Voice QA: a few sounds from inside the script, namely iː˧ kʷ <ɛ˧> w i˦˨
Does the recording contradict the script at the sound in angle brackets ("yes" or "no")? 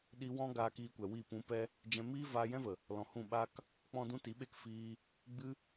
yes